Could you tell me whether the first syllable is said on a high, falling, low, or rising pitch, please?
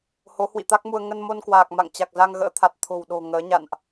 rising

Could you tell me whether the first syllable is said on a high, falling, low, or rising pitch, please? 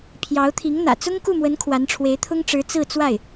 rising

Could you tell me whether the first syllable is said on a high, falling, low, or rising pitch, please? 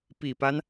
low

